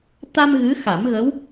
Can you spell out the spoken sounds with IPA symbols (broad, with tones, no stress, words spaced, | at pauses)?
t̪a˧m ɣɨ˧˥xa˨˩˦mɣə˧˥w